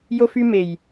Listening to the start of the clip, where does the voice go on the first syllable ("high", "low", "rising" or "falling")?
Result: high